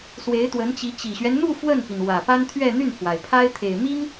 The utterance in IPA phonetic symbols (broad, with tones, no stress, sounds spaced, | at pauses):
s w e˧˥ ɪ̯ t̪ w ə˧˥ n t͡ɕ i˧˥ t͡ɕ i˨˩ ɕ ɥ ɛ˦ n n̪ u˥˧ f w ə˥˩ n p i˩ n w ä˨˩ p a˥ n t̪ʰ ɥ ɛ˥˧ n̪ y˥˩ n pʰ w a˩ ɪ̯ pʰ a˥ ɪ̯ t̪ʰ e˨˩ ɪ̯ m i˥ ŋ